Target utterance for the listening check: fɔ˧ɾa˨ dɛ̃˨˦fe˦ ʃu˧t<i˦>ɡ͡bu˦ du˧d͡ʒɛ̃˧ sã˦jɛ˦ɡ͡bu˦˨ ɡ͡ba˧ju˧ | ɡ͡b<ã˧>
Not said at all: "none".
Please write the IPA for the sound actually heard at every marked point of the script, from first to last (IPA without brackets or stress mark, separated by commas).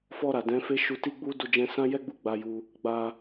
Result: i˦, a˧